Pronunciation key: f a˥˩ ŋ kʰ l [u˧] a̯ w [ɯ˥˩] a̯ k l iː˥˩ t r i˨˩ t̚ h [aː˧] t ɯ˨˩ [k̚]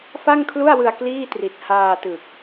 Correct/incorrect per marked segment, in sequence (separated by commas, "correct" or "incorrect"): incorrect, incorrect, correct, correct